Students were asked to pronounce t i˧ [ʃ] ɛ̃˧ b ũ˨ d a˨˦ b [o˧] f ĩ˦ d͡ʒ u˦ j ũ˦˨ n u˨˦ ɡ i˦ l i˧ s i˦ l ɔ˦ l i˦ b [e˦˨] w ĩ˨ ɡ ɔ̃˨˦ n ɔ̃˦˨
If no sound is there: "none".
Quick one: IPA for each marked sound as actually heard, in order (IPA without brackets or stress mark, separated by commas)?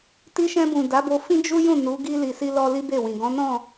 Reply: ʃ, o˧, e˦˨